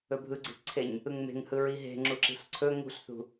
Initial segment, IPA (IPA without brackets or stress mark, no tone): ɵ